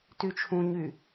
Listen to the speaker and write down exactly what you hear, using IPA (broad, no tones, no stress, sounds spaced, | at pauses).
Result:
t y t͡ʃʰ ũ ɲ y